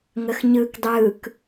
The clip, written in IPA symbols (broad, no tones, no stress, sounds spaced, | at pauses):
ŋ ə x ɲ ɯː k dˤ ɯː k